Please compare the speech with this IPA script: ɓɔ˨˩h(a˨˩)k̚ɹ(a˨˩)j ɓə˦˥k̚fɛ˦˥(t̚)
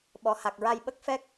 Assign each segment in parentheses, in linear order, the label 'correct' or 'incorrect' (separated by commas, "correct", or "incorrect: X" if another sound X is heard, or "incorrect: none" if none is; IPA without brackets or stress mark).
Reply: correct, incorrect: a˧, incorrect: k̚